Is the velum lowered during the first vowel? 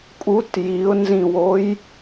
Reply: no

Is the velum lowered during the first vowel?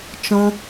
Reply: yes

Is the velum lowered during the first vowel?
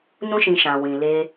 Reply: yes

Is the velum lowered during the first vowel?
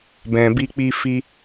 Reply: yes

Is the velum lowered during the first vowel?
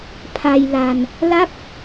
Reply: no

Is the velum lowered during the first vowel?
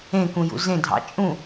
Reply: yes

